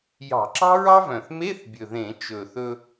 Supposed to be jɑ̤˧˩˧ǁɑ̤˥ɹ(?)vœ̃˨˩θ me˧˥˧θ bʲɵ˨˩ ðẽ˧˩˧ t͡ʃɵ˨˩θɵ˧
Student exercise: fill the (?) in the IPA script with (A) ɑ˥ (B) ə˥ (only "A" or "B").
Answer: A